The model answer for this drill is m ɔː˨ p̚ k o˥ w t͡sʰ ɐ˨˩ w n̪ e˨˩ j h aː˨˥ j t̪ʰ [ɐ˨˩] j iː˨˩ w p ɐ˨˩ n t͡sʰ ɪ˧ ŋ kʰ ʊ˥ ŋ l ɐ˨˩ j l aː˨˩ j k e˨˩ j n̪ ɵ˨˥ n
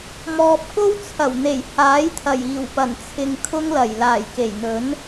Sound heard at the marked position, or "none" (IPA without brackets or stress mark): ɐ˨˩